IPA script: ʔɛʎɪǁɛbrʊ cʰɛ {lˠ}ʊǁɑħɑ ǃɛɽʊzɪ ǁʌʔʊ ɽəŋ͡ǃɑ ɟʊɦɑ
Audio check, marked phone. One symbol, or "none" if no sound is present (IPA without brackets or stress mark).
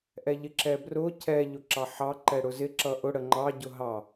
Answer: ʎ